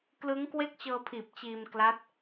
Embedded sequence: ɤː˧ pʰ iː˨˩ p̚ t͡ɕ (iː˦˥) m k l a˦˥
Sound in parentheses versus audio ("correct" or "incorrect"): incorrect